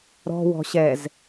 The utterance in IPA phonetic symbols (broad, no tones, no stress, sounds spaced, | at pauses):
ɾ ɔ̤ w ɔ̤ ɕ ɛ z